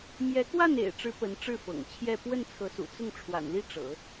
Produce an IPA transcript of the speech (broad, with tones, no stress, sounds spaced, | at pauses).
m j ɛ˧˥ k w a˥˩ n ḛ˨˩ ɪ̯ ʈ͡ʂ ɻ̩˧˥ p ə˧˥ n ʈ͡ʂ ɻ̩˥˩ f ɤ̰˨˩ ŋ t͡ɕʰ j ɛ˥˧ p w ə˥˩ n t͡sʰ ɤ˧˥ s ṵ˨˩ t͡s ʊ˥˩ ŋ ʈ͡ʂʰ w a̰˨˩ n l i˥ ʈ͡ʂ ɤ̰˨˩˦